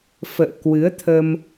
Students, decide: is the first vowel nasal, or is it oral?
oral